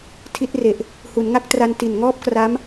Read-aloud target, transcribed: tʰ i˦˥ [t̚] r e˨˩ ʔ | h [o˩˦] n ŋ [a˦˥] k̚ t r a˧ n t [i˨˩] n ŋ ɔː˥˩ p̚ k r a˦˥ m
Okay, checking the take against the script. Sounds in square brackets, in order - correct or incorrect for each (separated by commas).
correct, incorrect, correct, correct